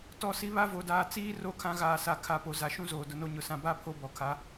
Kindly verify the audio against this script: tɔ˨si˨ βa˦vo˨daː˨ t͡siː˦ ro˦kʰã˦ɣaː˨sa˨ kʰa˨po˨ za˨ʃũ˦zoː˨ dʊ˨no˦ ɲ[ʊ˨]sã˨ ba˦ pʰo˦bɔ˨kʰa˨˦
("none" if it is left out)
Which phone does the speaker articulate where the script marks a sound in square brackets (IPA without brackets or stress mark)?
ʊ˨